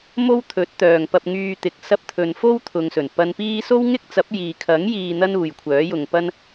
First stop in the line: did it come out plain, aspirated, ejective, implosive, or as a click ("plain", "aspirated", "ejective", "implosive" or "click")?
aspirated